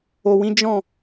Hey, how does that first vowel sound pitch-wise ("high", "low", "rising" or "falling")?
low